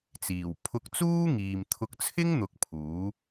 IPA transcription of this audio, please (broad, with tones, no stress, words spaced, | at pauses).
t͡siː˨˩w pʰʊ˧k̚t͡suː˥ŋiː˨m t̪ʰʊ˧k̚t͡sʰɪ˥ŋn̪ʊ˨˥k̚ pʰuː˨˥